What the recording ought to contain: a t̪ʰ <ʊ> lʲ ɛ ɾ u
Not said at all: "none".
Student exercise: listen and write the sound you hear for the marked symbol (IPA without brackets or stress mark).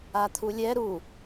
u